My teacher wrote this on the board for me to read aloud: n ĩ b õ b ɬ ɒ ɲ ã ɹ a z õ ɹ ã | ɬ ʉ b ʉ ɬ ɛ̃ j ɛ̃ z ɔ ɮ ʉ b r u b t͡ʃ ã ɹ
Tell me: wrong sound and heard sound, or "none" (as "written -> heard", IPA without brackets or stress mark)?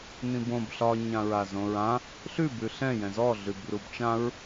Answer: none